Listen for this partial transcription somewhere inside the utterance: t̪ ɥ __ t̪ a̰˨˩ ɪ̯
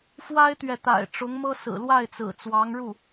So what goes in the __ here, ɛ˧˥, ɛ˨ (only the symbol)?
ɛ˨